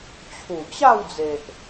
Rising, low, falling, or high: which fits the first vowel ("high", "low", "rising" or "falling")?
low